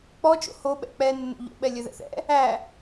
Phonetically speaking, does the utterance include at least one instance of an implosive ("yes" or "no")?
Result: yes